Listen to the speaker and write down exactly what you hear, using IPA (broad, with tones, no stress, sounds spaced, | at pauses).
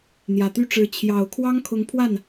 n̪ j ä˨˩ t̪ y˥ ʈ͡ʂ ɻ̩˧˥ t͡ɕʰ j ɑ˨˩ ʊ̯ kʰ w ɑ˥ ŋ kʰ ʊ˧˥ ŋ pʰ w a˥˩ n